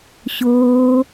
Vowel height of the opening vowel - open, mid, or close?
mid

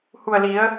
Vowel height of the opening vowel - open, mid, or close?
close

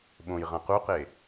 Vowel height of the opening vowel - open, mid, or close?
mid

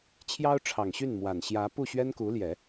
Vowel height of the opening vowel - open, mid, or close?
open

